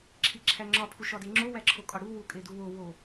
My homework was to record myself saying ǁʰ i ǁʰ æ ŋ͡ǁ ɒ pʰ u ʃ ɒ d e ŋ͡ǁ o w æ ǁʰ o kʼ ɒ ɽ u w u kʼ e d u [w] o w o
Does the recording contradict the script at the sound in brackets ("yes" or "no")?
no